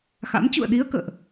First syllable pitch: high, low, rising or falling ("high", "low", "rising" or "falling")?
rising